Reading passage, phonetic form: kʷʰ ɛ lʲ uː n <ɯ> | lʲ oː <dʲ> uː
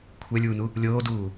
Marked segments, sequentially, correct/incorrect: incorrect, incorrect

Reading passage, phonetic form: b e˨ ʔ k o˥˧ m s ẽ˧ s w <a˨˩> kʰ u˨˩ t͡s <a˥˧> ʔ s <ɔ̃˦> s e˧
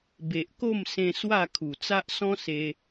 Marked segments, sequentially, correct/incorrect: incorrect, incorrect, correct

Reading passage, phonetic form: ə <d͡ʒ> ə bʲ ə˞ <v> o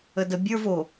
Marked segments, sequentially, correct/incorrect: incorrect, correct

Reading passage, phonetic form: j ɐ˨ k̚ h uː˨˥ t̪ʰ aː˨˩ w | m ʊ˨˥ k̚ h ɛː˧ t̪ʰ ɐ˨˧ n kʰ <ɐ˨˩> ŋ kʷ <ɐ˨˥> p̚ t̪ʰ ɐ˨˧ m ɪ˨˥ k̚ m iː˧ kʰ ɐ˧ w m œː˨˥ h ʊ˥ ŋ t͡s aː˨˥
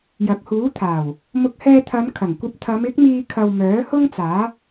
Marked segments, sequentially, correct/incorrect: correct, incorrect

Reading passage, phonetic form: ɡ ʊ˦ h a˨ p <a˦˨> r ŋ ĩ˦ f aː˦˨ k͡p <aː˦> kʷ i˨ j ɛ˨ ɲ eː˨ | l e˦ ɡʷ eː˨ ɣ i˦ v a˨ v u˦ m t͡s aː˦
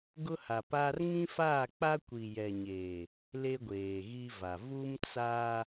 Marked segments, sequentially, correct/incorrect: incorrect, incorrect

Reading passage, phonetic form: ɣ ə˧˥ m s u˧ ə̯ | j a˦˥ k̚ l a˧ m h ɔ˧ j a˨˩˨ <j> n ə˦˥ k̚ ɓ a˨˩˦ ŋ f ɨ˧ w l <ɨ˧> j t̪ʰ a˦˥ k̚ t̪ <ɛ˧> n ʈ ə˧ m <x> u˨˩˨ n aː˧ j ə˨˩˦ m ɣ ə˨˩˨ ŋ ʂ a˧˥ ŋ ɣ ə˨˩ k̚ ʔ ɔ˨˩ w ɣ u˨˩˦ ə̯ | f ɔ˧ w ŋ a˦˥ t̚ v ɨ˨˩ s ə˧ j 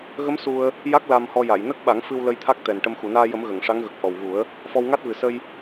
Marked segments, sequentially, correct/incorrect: correct, incorrect, incorrect, correct

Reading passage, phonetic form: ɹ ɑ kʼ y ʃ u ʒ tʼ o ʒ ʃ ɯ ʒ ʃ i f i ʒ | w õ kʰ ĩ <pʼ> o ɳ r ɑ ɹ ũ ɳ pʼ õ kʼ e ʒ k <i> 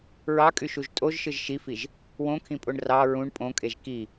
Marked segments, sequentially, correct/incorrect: correct, correct

